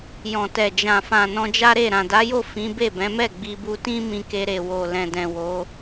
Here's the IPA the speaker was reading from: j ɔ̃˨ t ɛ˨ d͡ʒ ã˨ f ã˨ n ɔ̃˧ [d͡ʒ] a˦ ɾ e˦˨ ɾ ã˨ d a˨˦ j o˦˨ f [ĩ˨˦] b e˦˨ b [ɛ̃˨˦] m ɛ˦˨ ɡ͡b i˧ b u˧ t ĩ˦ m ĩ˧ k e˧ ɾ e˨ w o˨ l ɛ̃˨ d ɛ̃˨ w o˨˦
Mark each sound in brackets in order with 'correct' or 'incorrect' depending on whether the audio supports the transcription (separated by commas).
correct, correct, correct